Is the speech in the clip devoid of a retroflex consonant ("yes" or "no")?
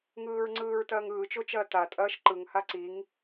yes